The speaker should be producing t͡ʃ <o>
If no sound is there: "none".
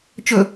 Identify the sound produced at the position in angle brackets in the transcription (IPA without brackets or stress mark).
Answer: ɵ